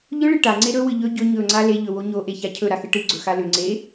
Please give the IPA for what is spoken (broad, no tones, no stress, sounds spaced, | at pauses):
ʎ ɵ ɭ ɨ ʈ a ŋ͡ǀ e ɾ ɵ w ɨ ʎ ɵ ɟ ɵ ɲ ɵ ŋ͡ǀ a l e ʎ ɵ w o ɲ o ʔ e ç a cʰ ɵ ɾ a x ɨ ʈ ɨ ɡ͡ǀ ɵ x a l ʏ ŋ͡ǀ e